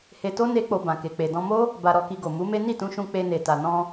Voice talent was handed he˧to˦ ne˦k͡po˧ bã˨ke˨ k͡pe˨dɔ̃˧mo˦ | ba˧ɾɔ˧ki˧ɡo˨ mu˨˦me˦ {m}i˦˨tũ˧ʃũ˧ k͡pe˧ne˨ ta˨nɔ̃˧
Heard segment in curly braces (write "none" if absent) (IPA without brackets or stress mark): n